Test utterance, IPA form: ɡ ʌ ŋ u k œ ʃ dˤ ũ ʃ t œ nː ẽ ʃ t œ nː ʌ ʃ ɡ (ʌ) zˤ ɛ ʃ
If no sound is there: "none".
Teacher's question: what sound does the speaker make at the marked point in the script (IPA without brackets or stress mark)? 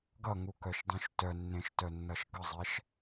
ʌ